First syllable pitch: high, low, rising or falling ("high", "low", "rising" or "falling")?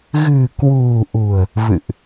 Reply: low